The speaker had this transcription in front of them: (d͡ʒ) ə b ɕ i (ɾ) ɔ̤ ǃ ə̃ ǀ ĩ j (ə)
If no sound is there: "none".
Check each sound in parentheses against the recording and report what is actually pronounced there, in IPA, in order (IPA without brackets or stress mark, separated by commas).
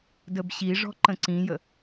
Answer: d, ʐ, ə